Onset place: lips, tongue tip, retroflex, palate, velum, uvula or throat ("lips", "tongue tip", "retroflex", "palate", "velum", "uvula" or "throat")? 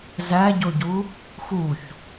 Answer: tongue tip